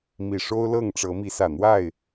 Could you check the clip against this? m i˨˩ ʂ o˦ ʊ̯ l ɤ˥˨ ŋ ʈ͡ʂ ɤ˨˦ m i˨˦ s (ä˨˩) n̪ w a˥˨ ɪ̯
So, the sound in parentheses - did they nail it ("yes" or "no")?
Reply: yes